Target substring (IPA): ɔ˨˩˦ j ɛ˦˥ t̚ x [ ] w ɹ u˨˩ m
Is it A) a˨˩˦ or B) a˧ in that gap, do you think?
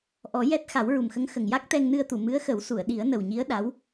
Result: A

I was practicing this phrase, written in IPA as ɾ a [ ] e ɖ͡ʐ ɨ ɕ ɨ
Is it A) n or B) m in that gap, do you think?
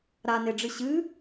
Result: A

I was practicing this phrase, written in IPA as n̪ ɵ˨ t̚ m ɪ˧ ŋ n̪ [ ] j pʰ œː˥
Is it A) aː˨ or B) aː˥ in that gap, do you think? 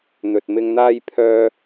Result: B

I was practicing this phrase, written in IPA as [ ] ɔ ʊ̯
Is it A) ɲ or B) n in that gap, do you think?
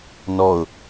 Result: B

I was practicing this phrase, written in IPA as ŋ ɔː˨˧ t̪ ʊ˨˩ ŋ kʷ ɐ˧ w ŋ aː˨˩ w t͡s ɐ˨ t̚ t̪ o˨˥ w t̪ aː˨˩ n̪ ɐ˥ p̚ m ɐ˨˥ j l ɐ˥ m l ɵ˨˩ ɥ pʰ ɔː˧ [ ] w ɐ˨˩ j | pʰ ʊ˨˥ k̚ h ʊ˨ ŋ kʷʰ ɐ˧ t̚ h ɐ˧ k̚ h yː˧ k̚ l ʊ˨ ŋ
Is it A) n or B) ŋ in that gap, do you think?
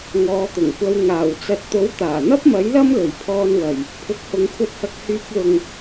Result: A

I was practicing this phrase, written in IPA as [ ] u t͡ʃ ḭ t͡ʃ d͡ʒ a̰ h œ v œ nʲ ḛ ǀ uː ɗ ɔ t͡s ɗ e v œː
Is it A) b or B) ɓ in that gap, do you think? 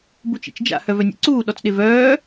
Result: A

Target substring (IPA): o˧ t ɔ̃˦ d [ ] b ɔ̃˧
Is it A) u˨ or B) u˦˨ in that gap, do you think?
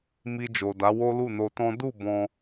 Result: B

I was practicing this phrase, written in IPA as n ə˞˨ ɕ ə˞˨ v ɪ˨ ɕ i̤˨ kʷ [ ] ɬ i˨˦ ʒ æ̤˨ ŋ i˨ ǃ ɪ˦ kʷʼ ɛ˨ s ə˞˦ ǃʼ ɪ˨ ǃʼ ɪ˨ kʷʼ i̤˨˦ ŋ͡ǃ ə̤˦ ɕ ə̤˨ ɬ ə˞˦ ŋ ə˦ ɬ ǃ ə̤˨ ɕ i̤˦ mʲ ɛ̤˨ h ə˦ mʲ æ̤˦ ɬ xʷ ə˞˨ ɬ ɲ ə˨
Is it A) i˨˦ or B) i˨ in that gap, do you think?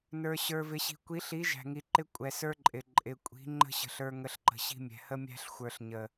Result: A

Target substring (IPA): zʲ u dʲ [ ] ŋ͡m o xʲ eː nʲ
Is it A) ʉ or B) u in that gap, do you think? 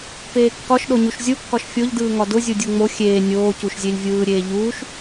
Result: B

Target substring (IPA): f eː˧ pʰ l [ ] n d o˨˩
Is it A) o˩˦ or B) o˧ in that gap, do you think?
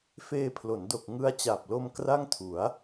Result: A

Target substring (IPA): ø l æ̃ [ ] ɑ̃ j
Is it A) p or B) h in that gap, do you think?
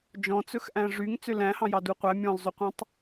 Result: B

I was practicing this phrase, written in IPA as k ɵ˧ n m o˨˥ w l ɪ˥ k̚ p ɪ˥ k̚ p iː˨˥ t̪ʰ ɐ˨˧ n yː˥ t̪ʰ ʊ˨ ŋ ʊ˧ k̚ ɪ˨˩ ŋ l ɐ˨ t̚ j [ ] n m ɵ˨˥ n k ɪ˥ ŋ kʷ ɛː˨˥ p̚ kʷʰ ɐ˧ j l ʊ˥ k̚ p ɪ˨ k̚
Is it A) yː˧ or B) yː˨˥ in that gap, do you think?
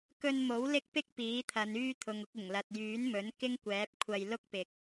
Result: B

